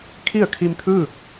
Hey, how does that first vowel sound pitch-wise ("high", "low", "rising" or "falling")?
falling